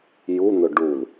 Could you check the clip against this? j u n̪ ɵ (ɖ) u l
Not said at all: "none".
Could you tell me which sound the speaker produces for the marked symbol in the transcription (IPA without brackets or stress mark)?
ɖ